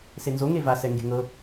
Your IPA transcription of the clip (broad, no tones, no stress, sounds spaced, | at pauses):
s e n z o ŋ e v a s ɛ ŋ ɡ e̤ ŋ ɤ